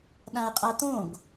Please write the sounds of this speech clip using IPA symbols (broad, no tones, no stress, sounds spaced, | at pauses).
ɗ ã ə̯ qʼ a t̪ õ ɡ